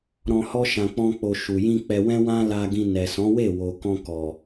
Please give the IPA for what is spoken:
ɾɔ̃˧ hɔ˦ ʃã˧k͡pɔ̃˦k͡po˧ ʃu˨jĩ˧ k͡pɛ˧wɛ̃˦wã˦ la˧ɡĩ˧ nɛ˨sɔ̃˨˦ we˦˨wo˨ kɔ̃˧kɔ˨

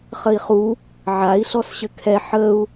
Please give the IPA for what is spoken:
χəi̯χu | ʕai̯ ɬɔsɕɘkʰɛ ħəu̯

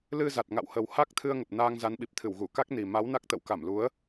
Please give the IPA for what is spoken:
lɨ˧za˨˩t̚ ŋa̰˧˨whə˨˩w ha˦˥k̚t̪ʰɨ˧ə̯ŋə˨˩p̚ naː˧ŋza˨˦nɓi˨˩p̚t̪ʰɨ˧˩w ɣu˧˩ka˦˥k̚ni˨˩ ma˨˦wna˦˥k̚t̪ə̰˧˨w ka˧˩mlu˨˦ə̯

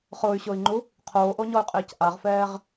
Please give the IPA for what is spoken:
χʊːy̯ɕʊːi̯ŋ͡ǃu | qʰoːʔoɲɔy̯qʼɪːc ʔaʁfɛːʁ

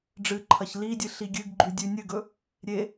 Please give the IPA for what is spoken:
ɖ͡ʐɨǃʰɐç lidʲɨ ɬiɡʲɨɡɡ͡ǃʉ dʲʉnʲɨɡɵ | ɾʲe

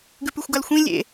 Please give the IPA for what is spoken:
ɡʉpʉxʷɡalxʷĩ lʲḛ

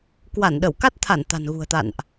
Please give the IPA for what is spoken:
kwa˧˩nɗə˧˩wka˦˥t̚t̪ʰa˧˩n t̪a̤˨˩nɣṳ˨˩ə̯t̪a̰˧˨nʔ

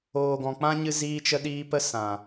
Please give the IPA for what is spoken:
oː˨ɡɔ̃˨ k͡pã˦ɲɨ˧ ziː˧t͡ʃə˧ɗiː˧ pə˦sã˨

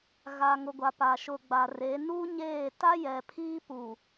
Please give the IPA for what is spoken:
ɣa˨ŋʊ˨ɡʷa˨ pa˨ʃʊ˨ɡ͡ba˨re˨˦ nu˦ɲeː˦˨ ta˦jɛ˨ pʰiː˦pu˨

